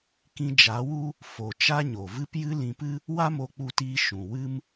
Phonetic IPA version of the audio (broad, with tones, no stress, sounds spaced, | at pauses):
k ĩ˧ d͡ʒ a˨˦ w u˦ | f o˨ t͡ʃ a˦ ɲ o˨ v ɨ˦ p j ɨ˦ l ĩ˧ p ɨ˦ | w a˦ m o˧ k͡p u˧ t iː˧ ʃ ũ˨ w ɨ˦ m